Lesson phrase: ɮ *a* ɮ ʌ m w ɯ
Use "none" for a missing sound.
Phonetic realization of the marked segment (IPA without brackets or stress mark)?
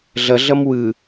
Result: ʌ